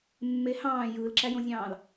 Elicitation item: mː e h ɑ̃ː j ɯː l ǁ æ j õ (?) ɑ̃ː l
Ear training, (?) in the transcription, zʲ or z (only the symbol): zʲ